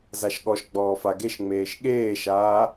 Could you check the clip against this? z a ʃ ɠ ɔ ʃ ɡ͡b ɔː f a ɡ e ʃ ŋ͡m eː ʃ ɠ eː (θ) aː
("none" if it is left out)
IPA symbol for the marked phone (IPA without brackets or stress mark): ʃ